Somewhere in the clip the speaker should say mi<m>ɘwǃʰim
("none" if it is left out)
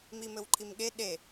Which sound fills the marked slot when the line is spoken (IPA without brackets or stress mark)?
m